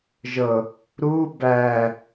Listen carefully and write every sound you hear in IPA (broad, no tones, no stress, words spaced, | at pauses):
ʒɤ | ɾuː bæː